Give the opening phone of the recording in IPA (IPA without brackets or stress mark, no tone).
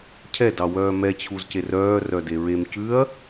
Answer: cʰ